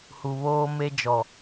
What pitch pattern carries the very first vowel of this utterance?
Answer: low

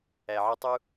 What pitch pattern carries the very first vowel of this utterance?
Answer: low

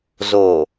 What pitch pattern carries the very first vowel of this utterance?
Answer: low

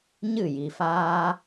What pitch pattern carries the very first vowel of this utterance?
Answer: falling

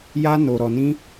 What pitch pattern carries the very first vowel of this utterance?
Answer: high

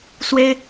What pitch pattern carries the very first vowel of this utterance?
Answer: high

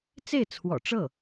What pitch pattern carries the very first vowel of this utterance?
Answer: falling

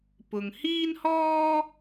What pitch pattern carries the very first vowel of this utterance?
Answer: low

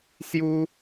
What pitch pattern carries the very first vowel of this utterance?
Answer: high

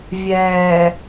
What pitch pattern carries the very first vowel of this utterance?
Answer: low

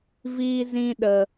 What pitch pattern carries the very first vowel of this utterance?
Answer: high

